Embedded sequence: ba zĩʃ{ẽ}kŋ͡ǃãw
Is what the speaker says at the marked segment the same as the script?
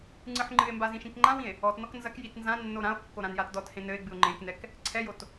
no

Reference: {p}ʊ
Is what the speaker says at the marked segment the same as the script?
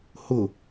no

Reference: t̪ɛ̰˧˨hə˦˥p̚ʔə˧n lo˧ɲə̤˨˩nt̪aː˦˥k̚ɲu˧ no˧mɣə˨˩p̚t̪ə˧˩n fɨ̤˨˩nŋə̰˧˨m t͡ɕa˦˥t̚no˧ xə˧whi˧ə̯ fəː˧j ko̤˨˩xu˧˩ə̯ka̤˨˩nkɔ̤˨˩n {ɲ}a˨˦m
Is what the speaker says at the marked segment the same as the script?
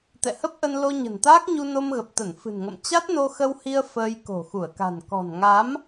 no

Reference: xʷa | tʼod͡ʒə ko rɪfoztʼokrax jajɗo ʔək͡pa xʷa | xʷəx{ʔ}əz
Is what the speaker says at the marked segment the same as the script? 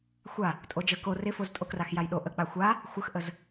yes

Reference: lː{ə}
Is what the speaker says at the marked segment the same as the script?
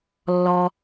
no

